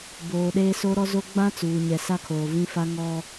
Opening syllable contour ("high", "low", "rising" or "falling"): low